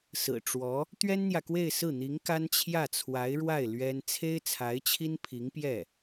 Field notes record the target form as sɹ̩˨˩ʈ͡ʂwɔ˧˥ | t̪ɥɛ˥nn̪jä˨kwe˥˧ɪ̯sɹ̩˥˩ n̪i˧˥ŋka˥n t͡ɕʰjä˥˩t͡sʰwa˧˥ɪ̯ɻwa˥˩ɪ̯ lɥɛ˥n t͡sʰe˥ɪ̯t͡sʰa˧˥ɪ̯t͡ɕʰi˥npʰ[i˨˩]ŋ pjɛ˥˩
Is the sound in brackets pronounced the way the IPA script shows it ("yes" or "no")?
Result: no